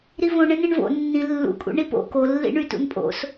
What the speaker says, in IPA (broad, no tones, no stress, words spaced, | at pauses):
ɾivõ ɳẽnẽɳvo̰ nːĩ lːṵkʼṵ ɳipo̰ kolːḭ ɳytṵnpʼo̰s